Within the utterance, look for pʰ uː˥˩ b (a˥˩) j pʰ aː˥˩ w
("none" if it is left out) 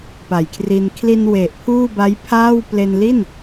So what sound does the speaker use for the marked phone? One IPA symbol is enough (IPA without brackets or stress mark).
a˦˥